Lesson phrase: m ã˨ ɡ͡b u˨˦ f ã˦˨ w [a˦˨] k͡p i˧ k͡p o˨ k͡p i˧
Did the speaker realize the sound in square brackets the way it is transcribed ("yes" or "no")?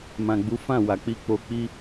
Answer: no